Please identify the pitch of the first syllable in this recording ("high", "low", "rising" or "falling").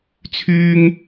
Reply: high